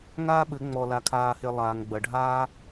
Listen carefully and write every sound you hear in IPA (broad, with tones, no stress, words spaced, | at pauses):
ŋaː˦ɓɘ˨˦ ŋ͡mɔ˧la˧kʰaː˧he˧ lˠaː˨ŋɡ͡bɐ˨ɖʱaː˦